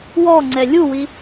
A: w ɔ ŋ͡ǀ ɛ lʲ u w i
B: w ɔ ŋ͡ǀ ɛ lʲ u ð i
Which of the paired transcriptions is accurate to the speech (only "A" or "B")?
A